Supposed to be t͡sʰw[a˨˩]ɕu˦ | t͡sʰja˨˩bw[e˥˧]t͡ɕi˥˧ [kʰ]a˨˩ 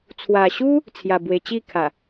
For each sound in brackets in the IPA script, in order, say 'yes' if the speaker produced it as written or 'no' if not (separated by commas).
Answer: yes, no, yes